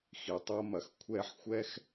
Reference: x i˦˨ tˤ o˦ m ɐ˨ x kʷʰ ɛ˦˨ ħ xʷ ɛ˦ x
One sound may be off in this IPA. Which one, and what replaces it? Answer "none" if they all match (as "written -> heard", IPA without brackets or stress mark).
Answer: i˦˨ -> i˨